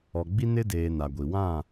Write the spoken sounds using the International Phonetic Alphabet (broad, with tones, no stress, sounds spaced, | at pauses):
ɔ˨ ɡ͡b i˦ n ɪ˦ d eː˨ n a˨ ɡʷ i˨ w ã˦˨